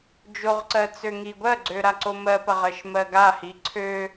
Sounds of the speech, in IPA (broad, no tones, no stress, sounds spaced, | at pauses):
d͡ʒ o ʁ ǀ ɜ t͡s ø ŋ i ɡʷ ɜ ɡ͡ǀ ø ɾ a ǀ o m ɜ p ɐ ʁ ɜ ʃ m ɜ ɡ a h i ǀʰ ø